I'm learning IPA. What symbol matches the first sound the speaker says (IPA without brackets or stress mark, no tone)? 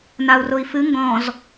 n